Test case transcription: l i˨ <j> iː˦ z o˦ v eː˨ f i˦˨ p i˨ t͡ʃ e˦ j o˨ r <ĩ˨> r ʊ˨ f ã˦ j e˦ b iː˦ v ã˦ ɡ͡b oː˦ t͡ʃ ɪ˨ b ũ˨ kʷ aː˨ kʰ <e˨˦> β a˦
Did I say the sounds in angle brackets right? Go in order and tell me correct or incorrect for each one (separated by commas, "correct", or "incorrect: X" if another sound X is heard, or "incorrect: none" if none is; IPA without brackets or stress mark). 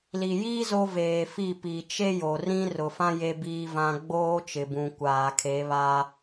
correct, incorrect: ĩ˦, correct